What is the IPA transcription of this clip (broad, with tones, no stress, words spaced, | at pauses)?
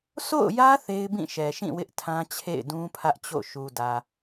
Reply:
so̰˦˨ʊ̯jä˦ θe˦ɪ̯bĩ˦˨ʃɛ˨ʃĩ˦˨ wɪ˦ʔtʰã˦t͡ɕʰḛ˦˨ɪ̯dũ˦ pʰä˦ʔt͡ɕo̰˦˨ ʃu˨dä˨